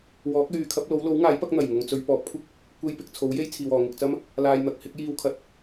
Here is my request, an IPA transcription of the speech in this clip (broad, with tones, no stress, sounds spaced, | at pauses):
w ɔː˨˥ k̚ l yː˨ kʰ ɐ˨˥ p̚ l o˨˥ w l o˨˥ w ŋ aː˨˥ j p ɐ˨˥ k̚ n̪ ɐ˨˩ j ŋ ʊ˨ ŋ t͡s ɵ˧ ɥ p ɔː˨ p̚ kʷʰ ɪ˥ k̚ | kʷ e˧ j p ɪ˨ k̚ t͡sʰ o˨˥ w j e˥ j t͡sʰ iː˨ w ɔː˨ ŋ ɪ˨ k̚ t͡s ɐ˥ m | l aː˨ j n̪ ɐ˨ k̚ h ɪ˨˥ k̚ j iː˧ w kʰ ɐ˨ t̚